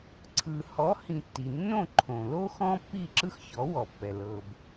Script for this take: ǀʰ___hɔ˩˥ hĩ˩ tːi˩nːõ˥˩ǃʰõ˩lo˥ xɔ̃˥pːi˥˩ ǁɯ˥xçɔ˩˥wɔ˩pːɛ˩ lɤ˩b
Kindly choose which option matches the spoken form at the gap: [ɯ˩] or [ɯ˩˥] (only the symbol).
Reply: ɯ˩